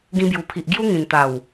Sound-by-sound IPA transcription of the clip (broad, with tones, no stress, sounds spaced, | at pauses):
ɡ ĩ˧ b j u˨˩ pʰ i˨ ʔ ɡ j u˦ ŋ ĩ˨˩ n t̪ a˨˩ w